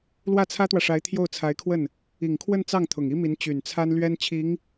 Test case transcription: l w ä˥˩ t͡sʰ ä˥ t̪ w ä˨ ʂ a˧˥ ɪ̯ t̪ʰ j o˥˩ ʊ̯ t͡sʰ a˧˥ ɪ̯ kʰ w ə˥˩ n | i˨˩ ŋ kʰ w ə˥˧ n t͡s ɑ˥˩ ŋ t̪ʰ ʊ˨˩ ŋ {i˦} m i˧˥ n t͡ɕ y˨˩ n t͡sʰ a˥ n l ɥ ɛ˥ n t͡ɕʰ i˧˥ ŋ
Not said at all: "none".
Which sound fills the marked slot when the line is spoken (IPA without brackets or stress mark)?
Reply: i˥